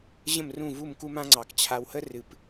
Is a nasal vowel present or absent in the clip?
present